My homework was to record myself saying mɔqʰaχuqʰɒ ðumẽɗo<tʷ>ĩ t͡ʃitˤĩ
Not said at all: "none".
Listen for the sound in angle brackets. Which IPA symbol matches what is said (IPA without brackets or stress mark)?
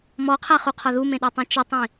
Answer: tˤ